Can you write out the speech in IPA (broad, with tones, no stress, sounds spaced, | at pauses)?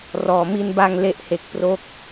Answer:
r ɔː˧ m i˥˩ n b a˥˩ ŋ l e˥˩ ʔ h e˦˥ k̚ p r o˥˩ k̚